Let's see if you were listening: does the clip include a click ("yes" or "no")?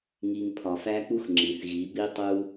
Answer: yes